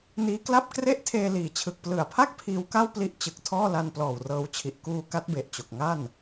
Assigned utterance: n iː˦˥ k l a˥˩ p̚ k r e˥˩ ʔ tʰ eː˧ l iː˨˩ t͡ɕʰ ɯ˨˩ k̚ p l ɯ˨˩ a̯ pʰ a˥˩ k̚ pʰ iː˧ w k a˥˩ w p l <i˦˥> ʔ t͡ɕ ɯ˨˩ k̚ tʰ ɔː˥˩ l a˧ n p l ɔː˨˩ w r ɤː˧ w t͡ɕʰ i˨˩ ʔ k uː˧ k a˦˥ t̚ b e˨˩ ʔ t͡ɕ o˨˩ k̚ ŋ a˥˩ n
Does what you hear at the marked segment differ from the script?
no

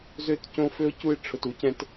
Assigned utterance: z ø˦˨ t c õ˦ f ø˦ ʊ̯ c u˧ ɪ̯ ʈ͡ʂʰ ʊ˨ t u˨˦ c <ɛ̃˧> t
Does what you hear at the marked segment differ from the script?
no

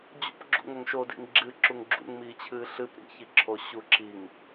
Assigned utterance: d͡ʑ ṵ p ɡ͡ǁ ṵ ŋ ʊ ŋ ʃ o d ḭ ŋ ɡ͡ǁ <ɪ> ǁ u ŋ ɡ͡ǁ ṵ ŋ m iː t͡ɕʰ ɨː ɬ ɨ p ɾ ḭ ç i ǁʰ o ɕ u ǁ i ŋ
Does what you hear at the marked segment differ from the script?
yes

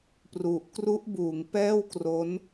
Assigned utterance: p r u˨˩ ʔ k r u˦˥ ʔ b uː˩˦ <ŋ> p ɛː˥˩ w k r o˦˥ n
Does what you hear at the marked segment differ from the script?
no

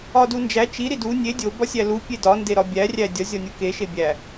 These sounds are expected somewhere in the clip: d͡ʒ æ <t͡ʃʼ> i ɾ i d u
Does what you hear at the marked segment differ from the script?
yes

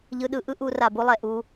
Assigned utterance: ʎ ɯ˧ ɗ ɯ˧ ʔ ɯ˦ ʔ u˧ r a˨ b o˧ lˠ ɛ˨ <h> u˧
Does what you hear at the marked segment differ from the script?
yes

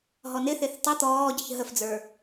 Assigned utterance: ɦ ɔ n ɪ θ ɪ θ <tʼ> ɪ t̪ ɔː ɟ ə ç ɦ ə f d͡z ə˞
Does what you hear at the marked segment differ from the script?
yes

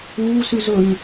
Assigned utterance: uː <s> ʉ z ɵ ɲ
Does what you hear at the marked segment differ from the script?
no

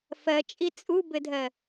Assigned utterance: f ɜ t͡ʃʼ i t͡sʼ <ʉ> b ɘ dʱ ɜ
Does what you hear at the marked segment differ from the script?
yes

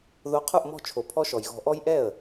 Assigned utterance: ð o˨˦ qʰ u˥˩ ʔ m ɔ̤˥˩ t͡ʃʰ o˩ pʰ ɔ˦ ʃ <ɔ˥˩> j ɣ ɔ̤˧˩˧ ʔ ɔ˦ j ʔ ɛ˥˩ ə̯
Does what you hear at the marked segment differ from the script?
yes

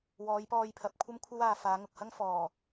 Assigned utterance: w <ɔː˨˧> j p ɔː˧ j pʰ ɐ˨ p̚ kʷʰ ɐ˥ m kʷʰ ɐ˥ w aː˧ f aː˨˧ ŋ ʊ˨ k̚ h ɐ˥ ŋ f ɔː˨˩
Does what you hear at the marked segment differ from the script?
no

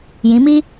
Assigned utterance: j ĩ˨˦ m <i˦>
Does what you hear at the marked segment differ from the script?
no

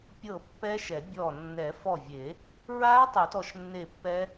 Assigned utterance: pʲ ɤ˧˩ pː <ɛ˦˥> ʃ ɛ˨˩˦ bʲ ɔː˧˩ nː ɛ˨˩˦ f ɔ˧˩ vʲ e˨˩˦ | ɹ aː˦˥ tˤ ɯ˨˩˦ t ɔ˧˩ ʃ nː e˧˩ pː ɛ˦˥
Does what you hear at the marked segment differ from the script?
no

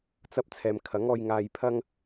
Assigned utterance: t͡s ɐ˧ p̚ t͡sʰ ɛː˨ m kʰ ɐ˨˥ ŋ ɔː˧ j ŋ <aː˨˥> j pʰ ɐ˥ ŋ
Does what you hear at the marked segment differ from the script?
yes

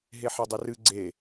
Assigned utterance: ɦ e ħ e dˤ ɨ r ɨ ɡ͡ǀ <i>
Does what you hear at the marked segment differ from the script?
yes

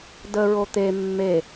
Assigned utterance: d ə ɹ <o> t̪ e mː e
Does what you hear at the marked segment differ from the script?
no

